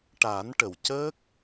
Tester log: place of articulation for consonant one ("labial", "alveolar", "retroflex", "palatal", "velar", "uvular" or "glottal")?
retroflex